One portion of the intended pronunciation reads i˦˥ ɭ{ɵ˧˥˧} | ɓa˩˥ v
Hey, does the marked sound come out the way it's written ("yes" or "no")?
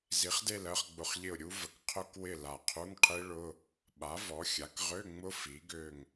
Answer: no